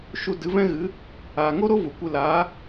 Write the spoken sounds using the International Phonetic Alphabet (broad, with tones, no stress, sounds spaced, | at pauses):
ʃ u˧ d ɨ˨˦ v ɛ̃˦ ɣ ɨ˨˦ | aː˨ ŋ o˦ ɾ o˦ v u˨ kʷ ɨ˧ l aː˨˦